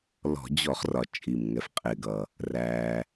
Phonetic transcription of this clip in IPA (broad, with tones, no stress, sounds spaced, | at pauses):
l ɔ̤˧˩˧ d͡ʑ ɔ˧˩˧ χ r ɒ˩ t͡ʃʼ i˩ m ŋ ɛ˩ f qʼ ɪː˩ ɡ ʌ˩ | r æː˩